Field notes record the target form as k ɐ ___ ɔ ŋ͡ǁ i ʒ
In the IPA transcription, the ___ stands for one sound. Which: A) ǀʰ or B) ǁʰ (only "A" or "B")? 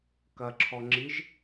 B